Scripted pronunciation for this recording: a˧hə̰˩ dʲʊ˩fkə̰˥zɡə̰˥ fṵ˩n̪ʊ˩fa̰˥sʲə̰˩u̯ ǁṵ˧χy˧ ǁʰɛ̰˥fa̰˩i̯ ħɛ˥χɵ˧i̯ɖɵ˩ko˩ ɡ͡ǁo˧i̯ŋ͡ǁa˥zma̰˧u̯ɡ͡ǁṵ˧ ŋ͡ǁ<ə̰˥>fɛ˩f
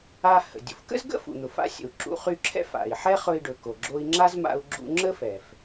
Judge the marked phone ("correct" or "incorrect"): incorrect